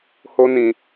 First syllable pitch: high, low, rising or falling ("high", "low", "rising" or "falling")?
high